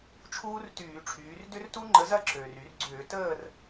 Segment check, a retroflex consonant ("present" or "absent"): present